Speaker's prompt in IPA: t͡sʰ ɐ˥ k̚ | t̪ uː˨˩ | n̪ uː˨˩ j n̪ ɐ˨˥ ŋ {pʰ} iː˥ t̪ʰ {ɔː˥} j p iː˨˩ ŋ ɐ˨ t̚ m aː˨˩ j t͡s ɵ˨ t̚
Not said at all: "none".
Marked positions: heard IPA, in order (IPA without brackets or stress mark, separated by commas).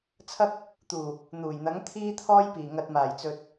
t̪ʰ, ɔː˥